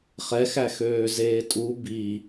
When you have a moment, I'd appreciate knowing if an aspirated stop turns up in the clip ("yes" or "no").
no